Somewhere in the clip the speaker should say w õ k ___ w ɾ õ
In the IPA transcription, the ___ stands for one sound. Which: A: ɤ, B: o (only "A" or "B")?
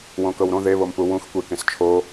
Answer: A